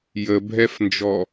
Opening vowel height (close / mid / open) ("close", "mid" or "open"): mid